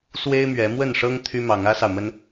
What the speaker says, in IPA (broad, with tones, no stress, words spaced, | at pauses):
swe˦ɪ̯mɥɛ˨˦ mwə˥˨nʂɤ˦ŋ t̪ʰy˦mɑ˨˦ŋ ä˦sɑ˨ʊ̯mə˦n